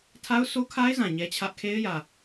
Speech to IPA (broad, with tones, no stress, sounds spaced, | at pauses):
tʰ a˦ ʊ̯ s o˦ kʰ a˦ ɪ̯ z ã˨ ɲ ɛ˦ t͡ɕʰ ä˦ ʔ kʰ e˦ ɪ̯ j ä˨